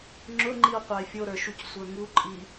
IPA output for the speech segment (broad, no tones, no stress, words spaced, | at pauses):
ŋ͡ǁʊŋ͡ǃiʊ̯ qʷɑɪ̯fʲoɾə˞ ʃucsʷə˞ŋuǃʼi